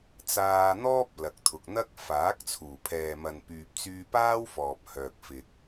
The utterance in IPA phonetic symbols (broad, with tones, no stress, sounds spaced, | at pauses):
t͡s aː˧ n̪ ɔː˥ p̚ l ɐ˨ k̚ t̪ʰ ʊ˨ k̚ n̪ ɐ˥ k̚ f aː˨˥ k̚ t͡sʰ uː˨˩ pʰ ɛː˨ m ɐ˨ n p yː˨ p̚ t͡s yː˧ p aː˥ w f ɔː˨ p̚ h œː˨ k̚ f ɪ˨ k̚